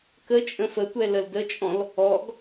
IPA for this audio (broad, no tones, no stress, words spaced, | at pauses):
kət͡ʃʼə̃ fətʷɛ ləldət͡ʃʼɔ̃l | ɔɡ